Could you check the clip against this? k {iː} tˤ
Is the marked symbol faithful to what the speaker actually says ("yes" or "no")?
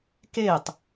no